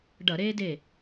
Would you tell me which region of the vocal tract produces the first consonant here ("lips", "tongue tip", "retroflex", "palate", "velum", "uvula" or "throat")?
retroflex